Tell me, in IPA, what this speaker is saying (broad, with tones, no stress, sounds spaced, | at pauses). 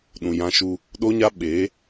ɗ ũ˨ j ã˧ ʃ u˧ | ɗ o˦ ɲ a˦ ɓ eː˨˦